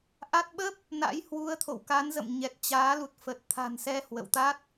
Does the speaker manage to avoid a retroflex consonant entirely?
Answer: yes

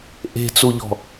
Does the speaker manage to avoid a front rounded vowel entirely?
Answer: yes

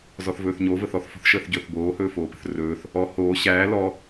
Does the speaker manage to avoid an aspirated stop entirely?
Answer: yes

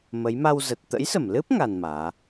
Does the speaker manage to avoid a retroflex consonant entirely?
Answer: yes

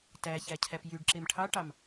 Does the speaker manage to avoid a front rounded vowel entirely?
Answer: no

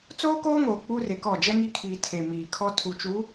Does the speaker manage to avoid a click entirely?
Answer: yes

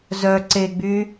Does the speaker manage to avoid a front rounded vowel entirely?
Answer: no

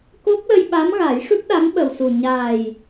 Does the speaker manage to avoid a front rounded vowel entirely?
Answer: yes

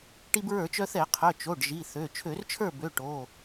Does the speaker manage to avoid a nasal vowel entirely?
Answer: yes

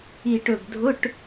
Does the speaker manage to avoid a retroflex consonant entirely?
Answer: no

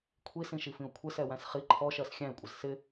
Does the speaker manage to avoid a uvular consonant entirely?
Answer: no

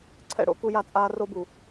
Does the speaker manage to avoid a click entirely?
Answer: no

